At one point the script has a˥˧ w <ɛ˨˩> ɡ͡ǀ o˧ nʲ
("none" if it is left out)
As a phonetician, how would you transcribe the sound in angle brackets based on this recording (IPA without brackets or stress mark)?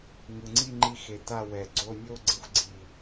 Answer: ɛ˨˩